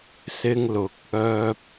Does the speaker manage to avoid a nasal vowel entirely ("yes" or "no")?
yes